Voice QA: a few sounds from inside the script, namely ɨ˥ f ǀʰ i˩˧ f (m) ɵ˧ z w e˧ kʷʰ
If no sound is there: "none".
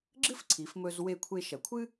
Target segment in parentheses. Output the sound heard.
m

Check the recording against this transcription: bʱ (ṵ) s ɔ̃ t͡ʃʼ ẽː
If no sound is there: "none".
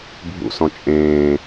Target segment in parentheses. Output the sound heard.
ṵ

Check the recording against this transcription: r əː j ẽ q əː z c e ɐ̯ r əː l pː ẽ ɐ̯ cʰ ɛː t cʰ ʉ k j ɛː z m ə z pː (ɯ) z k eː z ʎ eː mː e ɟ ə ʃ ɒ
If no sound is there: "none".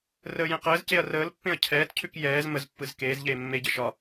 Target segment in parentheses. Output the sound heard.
ɯ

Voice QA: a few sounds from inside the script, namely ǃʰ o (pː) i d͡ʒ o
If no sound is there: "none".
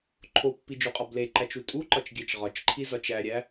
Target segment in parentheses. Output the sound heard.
pː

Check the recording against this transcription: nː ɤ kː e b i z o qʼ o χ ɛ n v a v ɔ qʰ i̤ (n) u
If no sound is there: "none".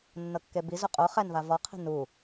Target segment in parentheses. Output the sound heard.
n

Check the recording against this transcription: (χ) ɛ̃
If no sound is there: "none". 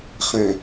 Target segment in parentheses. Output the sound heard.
χ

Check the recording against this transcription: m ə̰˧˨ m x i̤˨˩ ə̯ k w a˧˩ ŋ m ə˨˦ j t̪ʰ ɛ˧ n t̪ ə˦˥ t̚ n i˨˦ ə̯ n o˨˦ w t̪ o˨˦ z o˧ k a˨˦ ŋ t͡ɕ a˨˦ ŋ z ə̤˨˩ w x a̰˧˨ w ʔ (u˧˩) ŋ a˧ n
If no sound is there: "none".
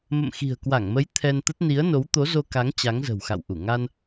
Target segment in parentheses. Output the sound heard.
u˧˩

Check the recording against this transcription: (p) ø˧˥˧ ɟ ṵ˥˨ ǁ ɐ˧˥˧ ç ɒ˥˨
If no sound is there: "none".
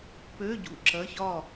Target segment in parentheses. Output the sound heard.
p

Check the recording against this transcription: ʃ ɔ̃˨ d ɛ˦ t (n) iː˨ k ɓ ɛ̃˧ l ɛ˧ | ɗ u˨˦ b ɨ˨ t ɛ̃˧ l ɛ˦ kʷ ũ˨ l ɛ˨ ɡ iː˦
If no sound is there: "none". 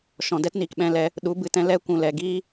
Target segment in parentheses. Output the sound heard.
n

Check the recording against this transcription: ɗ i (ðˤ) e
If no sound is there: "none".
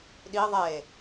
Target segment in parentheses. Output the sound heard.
ðˤ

